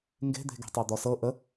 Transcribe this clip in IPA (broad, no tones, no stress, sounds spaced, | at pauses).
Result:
ŋ ɡ e̤ d̪ e̤ ɡ e̤ tˤ o d̪ ɔ s ɤ ʔ ə